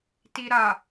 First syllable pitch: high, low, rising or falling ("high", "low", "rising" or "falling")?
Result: low